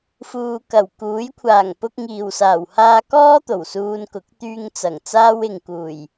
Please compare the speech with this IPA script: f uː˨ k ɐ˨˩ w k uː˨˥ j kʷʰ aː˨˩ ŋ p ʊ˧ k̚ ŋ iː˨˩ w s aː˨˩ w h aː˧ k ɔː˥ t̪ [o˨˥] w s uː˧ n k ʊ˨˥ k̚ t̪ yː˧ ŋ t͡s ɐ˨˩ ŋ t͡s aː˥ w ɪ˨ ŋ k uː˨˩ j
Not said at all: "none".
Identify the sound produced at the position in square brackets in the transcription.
o˨˩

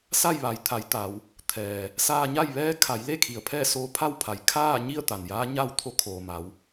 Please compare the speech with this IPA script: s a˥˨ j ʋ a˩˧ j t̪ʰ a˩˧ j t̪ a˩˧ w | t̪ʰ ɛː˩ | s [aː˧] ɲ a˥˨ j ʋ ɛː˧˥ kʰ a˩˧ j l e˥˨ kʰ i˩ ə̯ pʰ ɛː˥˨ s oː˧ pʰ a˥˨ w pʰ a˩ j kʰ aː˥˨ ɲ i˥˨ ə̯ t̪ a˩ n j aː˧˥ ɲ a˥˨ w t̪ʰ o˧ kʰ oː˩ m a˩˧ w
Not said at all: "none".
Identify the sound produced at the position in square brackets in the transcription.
aː˧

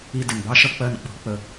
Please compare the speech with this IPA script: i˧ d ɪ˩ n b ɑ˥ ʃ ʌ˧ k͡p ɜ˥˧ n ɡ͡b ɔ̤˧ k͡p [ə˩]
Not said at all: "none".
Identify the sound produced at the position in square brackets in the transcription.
ə˧˩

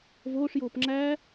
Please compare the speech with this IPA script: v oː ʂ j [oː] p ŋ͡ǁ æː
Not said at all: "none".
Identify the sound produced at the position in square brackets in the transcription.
oː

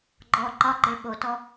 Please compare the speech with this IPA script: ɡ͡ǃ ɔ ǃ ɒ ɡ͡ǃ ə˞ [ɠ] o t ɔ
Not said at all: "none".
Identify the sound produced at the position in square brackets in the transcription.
ɠ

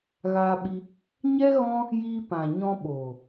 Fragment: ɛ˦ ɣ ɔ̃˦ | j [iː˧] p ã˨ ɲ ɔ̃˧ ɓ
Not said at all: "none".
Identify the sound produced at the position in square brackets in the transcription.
iː˧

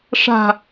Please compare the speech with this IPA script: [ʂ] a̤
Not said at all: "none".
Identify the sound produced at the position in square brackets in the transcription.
ʂ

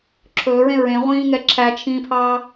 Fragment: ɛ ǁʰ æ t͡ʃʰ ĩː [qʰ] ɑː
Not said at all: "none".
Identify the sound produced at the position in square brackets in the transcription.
pʰ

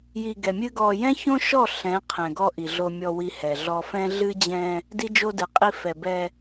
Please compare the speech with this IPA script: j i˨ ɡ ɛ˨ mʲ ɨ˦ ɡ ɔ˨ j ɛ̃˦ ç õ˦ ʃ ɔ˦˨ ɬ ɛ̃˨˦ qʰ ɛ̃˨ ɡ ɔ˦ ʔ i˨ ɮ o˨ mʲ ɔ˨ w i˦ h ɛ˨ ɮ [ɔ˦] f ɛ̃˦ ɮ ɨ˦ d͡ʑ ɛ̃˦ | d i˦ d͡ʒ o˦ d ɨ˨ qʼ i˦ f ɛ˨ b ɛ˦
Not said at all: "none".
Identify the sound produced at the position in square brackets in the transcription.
ɔ˦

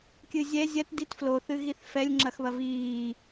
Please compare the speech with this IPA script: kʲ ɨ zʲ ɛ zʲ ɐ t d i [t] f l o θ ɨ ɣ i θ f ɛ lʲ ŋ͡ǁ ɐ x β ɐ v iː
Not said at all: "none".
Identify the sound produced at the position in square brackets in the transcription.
t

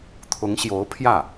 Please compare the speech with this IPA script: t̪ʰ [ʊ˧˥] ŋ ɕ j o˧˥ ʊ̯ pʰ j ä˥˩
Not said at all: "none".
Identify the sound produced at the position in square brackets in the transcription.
ʊ˧˥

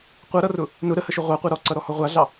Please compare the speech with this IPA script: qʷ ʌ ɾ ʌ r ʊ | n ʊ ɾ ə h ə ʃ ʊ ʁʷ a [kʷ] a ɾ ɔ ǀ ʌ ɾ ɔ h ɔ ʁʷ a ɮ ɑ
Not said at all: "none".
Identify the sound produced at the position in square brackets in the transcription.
qʷ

